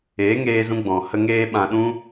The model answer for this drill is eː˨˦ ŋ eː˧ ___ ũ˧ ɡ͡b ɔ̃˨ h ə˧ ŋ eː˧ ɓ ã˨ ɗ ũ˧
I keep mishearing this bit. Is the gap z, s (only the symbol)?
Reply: z